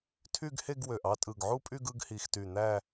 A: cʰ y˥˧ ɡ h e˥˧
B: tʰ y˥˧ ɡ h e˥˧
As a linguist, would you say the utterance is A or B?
B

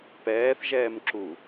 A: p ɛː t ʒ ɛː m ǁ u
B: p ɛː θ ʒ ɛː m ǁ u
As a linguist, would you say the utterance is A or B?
B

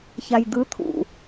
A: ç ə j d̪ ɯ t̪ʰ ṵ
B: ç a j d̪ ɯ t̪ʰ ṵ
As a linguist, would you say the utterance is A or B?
B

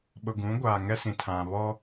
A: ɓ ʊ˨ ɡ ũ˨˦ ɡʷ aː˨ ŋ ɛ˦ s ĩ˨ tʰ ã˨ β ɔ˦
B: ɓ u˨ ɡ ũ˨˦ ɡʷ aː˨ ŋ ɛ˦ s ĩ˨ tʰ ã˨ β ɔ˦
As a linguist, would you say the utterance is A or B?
A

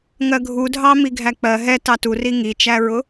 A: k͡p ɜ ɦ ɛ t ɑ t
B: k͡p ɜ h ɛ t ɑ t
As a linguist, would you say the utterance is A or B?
A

